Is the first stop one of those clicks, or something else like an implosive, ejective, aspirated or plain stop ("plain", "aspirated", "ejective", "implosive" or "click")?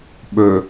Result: implosive